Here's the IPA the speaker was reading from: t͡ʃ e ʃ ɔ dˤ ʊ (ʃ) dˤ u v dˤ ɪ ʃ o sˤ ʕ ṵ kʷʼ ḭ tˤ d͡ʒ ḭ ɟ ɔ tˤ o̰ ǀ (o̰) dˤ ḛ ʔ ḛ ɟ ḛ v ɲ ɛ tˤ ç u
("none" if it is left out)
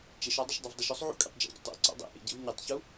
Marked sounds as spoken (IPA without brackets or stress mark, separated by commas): ʃ, ɔ̰